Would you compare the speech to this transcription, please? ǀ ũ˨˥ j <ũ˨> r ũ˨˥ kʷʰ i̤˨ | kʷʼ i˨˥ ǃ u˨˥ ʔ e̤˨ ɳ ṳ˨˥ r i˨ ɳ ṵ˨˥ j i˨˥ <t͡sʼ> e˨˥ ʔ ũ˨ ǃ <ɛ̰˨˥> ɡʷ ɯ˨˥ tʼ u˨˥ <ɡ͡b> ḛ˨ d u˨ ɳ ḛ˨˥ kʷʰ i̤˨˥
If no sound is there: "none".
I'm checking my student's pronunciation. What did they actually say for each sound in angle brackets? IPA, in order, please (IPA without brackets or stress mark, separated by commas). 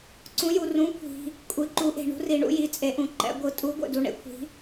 u˨, t͡sʼ, ɛ̰˨˥, ɡʷ